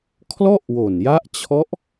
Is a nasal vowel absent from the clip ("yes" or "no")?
yes